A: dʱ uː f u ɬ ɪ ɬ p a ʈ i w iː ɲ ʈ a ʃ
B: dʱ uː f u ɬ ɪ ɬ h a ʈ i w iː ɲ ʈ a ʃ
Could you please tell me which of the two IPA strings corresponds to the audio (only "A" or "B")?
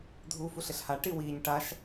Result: B